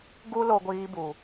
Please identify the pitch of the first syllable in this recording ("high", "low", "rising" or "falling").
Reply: high